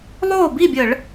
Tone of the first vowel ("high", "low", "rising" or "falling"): falling